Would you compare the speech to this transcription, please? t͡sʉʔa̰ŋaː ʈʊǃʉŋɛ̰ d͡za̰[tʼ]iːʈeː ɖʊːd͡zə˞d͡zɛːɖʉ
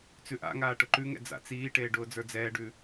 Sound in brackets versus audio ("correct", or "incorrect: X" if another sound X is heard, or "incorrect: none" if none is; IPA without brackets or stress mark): incorrect: t͡s